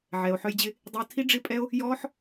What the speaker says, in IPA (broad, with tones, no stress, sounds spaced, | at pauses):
ʕ ɛ˨ o̯ ħ œ˧ j d͡ʑ ɪ˧ | dˤ i˧ o̯ tʰ i˦ ɖ͡ʐ ɪ˦ pʼ ɛ˦ o̯ | j ɔː˦ ħ